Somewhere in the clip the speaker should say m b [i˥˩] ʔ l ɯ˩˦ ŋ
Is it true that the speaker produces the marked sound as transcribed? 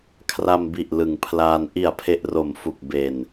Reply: no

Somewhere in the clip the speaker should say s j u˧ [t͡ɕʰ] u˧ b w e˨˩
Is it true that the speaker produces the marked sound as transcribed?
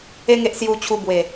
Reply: yes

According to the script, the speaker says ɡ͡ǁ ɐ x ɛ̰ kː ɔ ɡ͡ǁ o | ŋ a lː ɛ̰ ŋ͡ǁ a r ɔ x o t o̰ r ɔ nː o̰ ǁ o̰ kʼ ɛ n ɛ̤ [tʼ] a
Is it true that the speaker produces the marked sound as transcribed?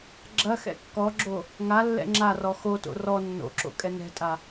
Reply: yes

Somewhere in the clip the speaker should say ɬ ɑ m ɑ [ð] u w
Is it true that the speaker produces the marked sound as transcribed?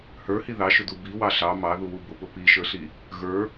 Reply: yes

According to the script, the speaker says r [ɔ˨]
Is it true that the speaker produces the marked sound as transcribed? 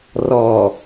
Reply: no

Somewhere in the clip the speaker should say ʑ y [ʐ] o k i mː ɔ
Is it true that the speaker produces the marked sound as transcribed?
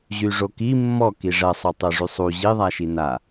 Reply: yes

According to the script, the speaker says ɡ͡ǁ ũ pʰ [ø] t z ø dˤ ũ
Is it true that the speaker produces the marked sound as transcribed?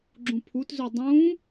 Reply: no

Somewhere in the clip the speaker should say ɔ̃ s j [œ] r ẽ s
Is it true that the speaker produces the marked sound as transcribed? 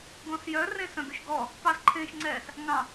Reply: yes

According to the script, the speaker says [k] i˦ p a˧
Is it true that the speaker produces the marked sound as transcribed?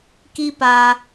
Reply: yes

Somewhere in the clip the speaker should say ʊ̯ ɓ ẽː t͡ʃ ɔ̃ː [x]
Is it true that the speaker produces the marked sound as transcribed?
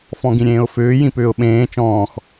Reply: yes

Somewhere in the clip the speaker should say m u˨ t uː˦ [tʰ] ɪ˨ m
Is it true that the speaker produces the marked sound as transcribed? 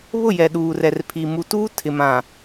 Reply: yes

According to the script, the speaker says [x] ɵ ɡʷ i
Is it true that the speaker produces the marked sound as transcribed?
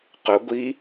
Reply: no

